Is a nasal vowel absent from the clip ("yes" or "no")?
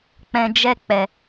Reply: no